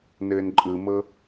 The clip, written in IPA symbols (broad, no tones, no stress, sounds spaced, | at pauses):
n ɘː n ǃʼ ɯ m ɤ